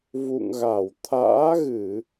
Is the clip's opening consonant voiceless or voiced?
voiced